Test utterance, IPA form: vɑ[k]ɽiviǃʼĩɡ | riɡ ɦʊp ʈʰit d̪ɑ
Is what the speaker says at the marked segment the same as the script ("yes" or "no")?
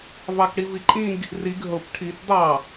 yes